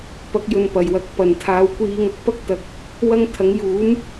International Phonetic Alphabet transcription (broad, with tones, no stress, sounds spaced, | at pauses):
p ɐ˧ k̚ j ɵ˨ n p ɐ˨˩ j w ɐ˨ k̚ p ɐ˨˩ n t̪ʰ aː˧ w kʷ iː˧ ŋ ɐ˨ k̚ p ɐ˥ k̚ t̪ ɐ˨˥ k̚ | w ɐ˥ ŋ t̪ʰ ɐ˨˥ ŋ j uː˨˥ m